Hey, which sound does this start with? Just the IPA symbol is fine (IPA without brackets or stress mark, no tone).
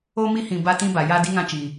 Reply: o